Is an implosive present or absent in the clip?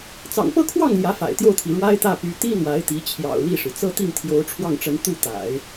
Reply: absent